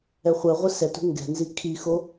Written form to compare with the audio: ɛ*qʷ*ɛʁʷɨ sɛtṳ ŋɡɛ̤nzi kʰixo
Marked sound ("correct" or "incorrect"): incorrect